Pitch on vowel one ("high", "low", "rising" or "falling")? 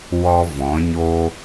high